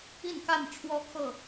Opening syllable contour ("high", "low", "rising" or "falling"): falling